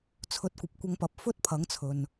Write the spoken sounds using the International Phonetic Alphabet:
t͡sʰ ɵ˨˥ t̚ kʷ ɐ˨ p̚ kʷ ɐ˧ ŋ p ɐ˨˥ p̚ f ɵ˥ t̚ pʰ ɐ˨˥ ŋ t͡sʰ ɵ˨ n

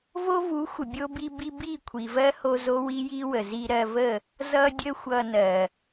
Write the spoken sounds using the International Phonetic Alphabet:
v o˦ v u˨˦ xʷ ə˨ bʲ o˦ b i˦ b i˦ b i˦˨ kʷʰ i˨ v ɜ˦ h o˧ z o˦ w i˦ j i˦ w ə˨ z i˧ ɾ ɜ˧ v ə˦˨ | z ʌ˦ dʲ ə˦ xʷ ʌ˧ n ɜ˨

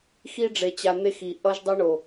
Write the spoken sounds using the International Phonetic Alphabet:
x i˦ ɖ͡ʐ e˨ t͡ɕ a˨ n̪ e˦ x i˨ ʔ ʌ˦ ʒ dˤ ɯ˦ ɳ o˨

